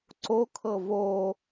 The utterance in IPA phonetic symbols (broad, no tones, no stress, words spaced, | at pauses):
ǀokʰɤ vo